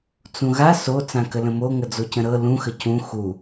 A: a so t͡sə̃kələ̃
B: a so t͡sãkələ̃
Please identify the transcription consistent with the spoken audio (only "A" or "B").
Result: B